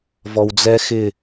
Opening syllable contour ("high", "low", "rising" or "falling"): low